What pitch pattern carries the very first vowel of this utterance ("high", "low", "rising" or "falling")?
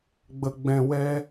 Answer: low